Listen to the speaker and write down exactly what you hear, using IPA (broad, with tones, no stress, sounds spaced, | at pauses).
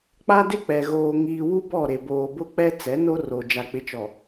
k͡p a˦ d ɪ˦ k͡p ɛ˨ ɣ oː˨ ŋ iː˨ w u˦ b ɔ˦˨ ɾ e˨ b oː˨ b ʊ˦ k͡p ɛ˦ t͡s ɛ˨˦ n o˦ r o˨ d͡ʒ a˨ k͡p ɪ˨˦ t͡ʃ ɔ˨